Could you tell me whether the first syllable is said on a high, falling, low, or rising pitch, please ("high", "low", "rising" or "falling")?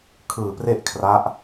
low